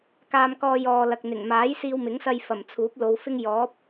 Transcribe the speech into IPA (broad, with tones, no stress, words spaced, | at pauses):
kaː˧mkɔː˧ jɔː˨lɐ˨k̚n̪ɪ˨˩ŋ maː˨˥jsiː˧wmɪ˨˥ŋsɐ˧j fɐ˨˩mt͡sʰuː˨˥p̚lo˨˧wfɪ˥ŋ jɔː˨˥p̚